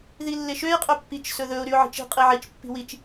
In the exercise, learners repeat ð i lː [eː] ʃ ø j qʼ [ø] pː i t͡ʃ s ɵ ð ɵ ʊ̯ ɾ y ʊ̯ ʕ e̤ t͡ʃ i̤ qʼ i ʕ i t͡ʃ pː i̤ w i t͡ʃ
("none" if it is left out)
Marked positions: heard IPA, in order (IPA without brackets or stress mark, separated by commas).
e, ø